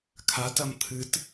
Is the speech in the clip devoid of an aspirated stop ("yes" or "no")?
no